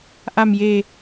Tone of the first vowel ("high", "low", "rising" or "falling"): low